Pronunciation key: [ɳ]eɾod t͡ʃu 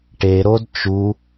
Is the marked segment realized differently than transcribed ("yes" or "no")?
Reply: yes